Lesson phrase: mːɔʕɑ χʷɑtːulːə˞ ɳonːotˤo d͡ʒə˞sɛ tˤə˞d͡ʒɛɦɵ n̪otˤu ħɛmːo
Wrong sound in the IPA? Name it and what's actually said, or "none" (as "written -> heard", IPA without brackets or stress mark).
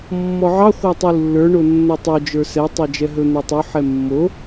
tː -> tˤ